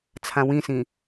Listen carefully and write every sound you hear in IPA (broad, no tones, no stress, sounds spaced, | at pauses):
t͡sʰ ã w ĩ s ĩ